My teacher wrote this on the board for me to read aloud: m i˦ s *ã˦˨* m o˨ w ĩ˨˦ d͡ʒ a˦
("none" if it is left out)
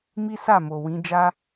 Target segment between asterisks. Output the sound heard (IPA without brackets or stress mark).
a˦˨